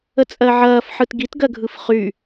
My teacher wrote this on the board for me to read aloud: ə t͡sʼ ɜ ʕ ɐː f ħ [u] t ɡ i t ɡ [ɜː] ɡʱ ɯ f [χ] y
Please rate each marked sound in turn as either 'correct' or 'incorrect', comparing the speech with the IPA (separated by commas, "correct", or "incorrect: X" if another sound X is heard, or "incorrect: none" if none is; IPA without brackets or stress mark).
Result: incorrect: ɯ, incorrect: ɜ, correct